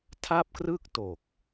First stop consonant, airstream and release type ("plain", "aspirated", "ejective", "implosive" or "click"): aspirated